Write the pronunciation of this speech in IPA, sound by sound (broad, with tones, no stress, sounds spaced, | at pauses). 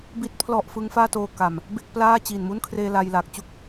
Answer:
b i˨˩ t̚ pʰ l ɔ˨˩ ʔ f ɯ˦˥ ŋ f aː˥˩ t oː˧ k a˨˩ m | b e˥˩ k̚ p l aː˥˩ t͡ɕ iː˨˩ n m u˥˩ n kʰ r eː˧ l a˧ j l aː˨˩ k̚ t͡ɕ u˥˩ k̚